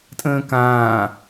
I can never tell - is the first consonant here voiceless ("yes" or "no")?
yes